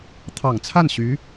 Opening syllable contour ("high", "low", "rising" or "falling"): low